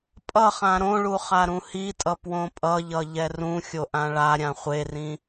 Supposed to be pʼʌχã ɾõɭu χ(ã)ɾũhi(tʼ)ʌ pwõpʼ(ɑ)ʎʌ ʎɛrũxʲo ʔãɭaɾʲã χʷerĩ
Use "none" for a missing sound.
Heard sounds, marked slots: a, tʼ, ʌ

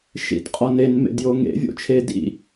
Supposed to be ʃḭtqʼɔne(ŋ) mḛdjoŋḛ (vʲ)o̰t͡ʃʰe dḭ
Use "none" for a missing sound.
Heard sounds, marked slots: n, vʲ

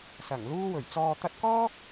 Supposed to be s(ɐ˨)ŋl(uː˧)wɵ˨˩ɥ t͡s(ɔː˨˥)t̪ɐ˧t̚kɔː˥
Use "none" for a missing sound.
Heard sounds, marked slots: ɐ˨˩, uː˧, ɔː˨

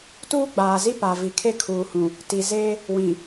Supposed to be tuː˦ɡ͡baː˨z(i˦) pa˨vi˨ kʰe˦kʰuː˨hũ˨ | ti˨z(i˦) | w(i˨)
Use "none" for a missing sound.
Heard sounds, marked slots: i˦, e˦, ĩ˨

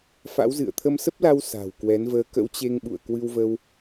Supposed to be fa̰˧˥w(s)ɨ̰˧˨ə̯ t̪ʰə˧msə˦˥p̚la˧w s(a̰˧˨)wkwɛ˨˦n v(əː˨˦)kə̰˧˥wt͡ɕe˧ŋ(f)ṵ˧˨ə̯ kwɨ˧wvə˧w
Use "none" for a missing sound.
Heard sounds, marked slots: z, a̤˨˩, əː˨˦, ɓ

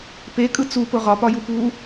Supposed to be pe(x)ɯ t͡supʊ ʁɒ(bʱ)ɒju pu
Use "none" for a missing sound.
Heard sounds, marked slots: kʼ, p

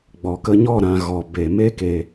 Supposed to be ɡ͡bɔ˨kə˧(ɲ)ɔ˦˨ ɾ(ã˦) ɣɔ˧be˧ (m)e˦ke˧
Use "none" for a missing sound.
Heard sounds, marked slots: ɲ, ã˧, m

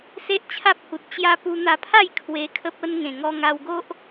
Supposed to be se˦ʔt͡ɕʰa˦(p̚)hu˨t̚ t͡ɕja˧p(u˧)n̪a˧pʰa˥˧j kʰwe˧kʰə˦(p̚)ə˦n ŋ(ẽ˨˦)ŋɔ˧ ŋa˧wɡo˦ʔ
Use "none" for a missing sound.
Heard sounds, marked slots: p̚, u˧, p̚, ẽ˨˩

